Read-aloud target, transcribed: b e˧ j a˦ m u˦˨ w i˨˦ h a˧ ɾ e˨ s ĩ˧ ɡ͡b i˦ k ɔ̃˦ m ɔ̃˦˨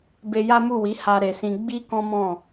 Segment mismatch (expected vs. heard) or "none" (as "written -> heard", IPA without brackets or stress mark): none